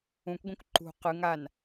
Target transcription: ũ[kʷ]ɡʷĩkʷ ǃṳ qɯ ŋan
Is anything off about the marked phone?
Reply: no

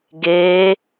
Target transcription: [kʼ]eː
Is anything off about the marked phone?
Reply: yes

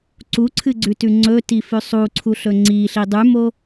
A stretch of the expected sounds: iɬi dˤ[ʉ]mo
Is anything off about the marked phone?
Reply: no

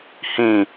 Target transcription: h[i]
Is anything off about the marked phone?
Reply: yes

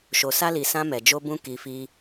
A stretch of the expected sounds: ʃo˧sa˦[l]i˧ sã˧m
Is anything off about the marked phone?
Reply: no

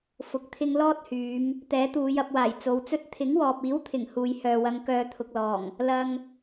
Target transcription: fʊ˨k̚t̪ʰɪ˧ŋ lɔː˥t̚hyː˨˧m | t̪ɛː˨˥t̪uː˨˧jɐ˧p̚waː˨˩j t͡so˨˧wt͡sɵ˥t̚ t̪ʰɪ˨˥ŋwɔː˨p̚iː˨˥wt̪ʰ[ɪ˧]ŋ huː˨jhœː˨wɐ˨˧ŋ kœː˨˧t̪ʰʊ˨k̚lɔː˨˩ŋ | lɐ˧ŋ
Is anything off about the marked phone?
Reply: yes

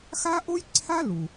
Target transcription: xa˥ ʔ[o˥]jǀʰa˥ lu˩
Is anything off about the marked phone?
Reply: no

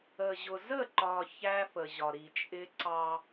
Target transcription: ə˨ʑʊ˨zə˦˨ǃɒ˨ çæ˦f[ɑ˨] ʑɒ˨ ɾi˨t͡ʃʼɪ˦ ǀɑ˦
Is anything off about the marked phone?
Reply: yes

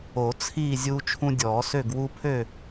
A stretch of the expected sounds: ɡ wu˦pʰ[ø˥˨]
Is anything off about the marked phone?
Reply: no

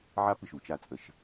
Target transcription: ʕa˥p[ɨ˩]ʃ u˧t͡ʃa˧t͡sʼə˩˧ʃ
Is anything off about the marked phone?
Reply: no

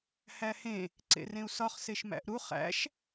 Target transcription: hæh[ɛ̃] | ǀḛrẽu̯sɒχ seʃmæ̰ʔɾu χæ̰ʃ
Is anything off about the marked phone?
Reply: yes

